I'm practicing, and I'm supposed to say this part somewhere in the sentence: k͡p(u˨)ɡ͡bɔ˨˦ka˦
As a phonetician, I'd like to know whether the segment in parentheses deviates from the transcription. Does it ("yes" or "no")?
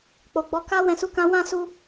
yes